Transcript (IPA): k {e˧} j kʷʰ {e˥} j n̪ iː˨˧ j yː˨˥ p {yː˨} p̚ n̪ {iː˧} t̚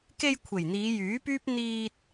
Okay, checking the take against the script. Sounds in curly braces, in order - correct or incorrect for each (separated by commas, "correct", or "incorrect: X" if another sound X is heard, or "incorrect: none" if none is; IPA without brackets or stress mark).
correct, incorrect: e˨˩, incorrect: yː˥, correct